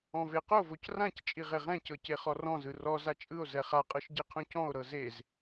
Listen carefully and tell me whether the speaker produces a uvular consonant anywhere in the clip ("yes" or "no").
yes